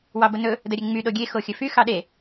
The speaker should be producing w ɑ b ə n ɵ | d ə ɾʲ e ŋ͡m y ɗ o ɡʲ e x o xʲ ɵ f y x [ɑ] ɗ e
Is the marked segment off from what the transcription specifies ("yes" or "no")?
no